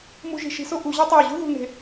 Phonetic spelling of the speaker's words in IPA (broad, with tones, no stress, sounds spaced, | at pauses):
m ṳ˧ ʒ i̤˧˩ ʃ i̤˧ s o˥ ʔ u˩˧ ʑ ɒ˥ tˤ æ˧˩ ʑ ṳ˥ ð ṳ˧ n̪ e̤˧